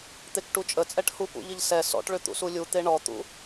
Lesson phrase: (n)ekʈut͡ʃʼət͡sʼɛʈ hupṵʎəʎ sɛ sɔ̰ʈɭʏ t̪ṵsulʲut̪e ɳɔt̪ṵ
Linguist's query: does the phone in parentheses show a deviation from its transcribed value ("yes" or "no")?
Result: yes